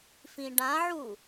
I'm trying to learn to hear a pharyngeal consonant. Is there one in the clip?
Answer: yes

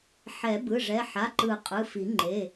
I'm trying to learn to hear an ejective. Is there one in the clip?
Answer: yes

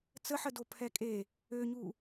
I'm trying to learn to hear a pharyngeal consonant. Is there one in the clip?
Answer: yes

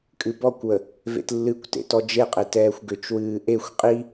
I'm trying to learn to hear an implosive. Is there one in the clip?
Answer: no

